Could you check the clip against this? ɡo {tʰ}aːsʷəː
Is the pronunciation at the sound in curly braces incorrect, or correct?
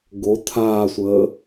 correct